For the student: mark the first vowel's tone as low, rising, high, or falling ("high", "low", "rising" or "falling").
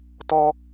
high